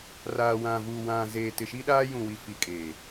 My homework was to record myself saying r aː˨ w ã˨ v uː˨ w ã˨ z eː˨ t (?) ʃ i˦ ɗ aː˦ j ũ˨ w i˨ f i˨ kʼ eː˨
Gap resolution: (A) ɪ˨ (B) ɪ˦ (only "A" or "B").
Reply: A